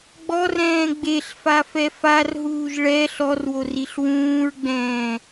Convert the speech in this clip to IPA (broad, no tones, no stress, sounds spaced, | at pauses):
ɡ͡b ɔ r ɛ̃ː ɡ͡b e ɬ f a f ɛ f a r ɦ uː ʒ ɭ ɛ ɬ ɔ r w o r i ɬ w ũː ɹ ɡ͡b ɛ̃ː